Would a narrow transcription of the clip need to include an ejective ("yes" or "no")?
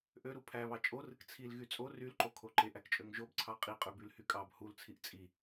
yes